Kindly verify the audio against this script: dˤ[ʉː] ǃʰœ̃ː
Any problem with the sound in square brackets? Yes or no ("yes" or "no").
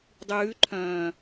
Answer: no